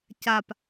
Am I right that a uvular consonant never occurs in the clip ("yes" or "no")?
yes